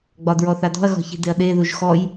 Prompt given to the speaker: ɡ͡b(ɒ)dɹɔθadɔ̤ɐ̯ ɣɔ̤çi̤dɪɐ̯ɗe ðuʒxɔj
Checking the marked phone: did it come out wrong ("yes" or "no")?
no